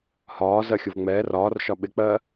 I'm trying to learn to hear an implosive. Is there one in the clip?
yes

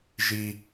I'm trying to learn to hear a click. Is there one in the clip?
no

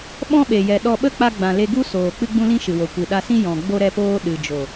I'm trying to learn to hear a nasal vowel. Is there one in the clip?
yes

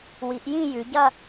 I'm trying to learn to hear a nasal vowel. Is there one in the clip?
yes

